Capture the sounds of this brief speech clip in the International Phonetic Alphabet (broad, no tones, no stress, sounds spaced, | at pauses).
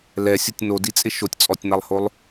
l ɛ sʲ ʊ tʲ n o d i t͡sʼ ɪ ʃ o tʲ t͡sʼ ɔ tʲ n a lˠ h o lˠ